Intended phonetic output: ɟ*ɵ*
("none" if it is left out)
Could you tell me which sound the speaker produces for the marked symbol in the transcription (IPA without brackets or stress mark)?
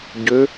ø